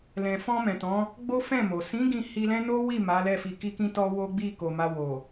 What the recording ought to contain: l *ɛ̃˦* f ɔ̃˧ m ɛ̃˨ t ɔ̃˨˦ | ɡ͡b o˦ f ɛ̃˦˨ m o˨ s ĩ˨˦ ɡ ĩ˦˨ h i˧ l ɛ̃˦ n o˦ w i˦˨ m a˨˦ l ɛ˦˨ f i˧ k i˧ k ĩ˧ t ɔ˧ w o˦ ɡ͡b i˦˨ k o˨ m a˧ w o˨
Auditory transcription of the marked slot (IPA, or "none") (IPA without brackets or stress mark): ɛ̃˨